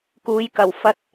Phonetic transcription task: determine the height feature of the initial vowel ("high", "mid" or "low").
high